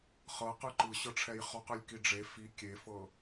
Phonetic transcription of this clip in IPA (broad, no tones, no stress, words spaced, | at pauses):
χɤqɯ ǃɯɕɤʈ͡ʂʰɛj χɔqɯlʲ kiɖ͡ʐe fi kʲefɤ